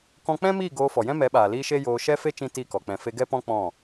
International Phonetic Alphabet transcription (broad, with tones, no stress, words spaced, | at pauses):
kɔ̃˧k͡pɛ̃˦miː˦˨ ɡoː˧fɔ˨jɛ̃˦ mɛ˨˦ɓaː˨liː˧ ʃe˦joː˧ ʃɛ˦fe˦ t͡ʃĩ˦ti˦˨kɔ˨ k͡pɛ̃˨fe˧ ɡɛ˦pɔ̃˦ k͡pɔ̃˦˨